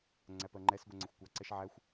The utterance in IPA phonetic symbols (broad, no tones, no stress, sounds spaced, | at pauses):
ŋ͡ǀ æ p ɜ ŋ͡ǃ ɛ s ɡʷ ɛ ŋ͡ǀ ɛ xʷ kʷ ɑ ǀ ɛ ʃ ʕ æ xʷ